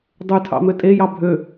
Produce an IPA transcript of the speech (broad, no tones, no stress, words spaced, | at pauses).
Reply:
dˤʉtʰɑ̰mø tʼejɑ bʱø